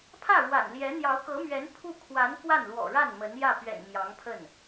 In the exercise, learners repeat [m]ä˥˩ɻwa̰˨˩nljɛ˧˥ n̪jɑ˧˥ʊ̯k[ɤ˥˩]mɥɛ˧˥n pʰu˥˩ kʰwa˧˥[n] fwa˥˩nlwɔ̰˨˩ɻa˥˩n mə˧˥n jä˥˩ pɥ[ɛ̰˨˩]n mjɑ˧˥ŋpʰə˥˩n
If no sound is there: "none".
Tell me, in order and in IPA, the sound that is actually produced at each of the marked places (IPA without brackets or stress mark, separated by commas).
pʰ, ɤ˧˥, n, ɛ̰˨˩